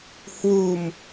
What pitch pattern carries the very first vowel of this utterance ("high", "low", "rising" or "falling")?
low